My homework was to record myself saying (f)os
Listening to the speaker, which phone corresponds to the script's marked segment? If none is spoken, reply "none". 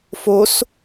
f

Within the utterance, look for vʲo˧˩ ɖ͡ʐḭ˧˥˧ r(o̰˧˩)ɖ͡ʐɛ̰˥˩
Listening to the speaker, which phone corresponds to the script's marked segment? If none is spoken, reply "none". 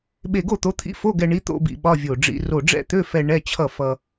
o˧˩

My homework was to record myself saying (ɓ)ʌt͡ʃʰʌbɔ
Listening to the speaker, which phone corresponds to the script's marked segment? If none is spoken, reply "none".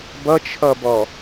b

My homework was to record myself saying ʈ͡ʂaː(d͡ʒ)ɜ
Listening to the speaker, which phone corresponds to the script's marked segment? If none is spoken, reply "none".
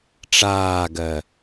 ɡ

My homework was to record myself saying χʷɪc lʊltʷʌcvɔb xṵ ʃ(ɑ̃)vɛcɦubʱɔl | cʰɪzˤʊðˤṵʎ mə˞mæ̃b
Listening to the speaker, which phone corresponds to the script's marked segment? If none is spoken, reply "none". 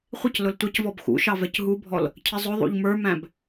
ɑ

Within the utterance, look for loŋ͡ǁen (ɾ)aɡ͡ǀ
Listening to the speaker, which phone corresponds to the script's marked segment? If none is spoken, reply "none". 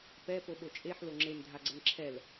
dʱ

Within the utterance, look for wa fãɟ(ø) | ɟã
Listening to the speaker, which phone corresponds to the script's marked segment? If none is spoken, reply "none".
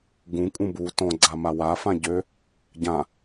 ø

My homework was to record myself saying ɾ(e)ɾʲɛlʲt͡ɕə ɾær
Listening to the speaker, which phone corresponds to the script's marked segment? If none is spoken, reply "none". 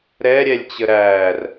ɛ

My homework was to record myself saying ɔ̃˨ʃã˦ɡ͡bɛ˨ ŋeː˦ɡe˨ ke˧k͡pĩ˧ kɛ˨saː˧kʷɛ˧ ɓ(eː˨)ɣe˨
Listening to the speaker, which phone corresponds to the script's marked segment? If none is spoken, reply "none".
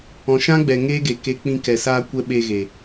eː˧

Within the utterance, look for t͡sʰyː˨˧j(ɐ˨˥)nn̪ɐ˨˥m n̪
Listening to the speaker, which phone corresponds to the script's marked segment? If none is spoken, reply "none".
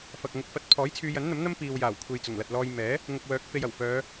ɐ˨˥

